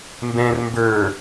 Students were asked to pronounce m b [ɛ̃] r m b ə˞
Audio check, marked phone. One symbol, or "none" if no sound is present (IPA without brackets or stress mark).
ɛ̃